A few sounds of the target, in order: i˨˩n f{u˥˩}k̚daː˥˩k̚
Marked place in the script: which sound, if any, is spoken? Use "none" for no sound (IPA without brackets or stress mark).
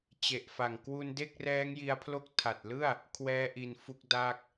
u˦˥